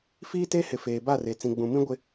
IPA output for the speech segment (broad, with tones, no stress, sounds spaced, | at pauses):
f iː˦ t e˦ h ɪ˨ f eː˨ b a˦˨ r e˨ t͡s ĩ˨ ɡ͡b ũ˨ m ĩ˦ ɡʷ ɪ˦